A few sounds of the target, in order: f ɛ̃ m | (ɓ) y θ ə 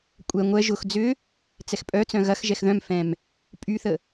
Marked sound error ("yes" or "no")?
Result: yes